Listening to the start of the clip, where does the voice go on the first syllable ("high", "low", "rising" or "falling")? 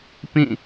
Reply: falling